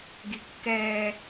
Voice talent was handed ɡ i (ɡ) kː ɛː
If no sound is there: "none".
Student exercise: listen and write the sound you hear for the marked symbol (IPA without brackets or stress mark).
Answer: none